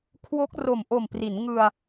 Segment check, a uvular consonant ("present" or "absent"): absent